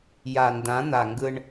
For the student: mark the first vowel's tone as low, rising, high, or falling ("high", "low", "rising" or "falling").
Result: low